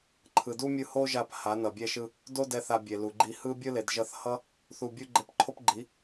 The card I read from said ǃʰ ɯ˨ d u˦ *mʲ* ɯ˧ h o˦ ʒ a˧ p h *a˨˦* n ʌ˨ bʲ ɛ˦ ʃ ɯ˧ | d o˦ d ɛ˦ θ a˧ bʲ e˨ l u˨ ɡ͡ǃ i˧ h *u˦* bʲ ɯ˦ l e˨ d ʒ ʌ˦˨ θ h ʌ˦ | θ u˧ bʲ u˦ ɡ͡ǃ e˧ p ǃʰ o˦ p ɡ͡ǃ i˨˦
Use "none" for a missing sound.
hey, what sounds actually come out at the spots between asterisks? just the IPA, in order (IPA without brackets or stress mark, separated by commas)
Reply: mʲ, a˨˦, ɯ˦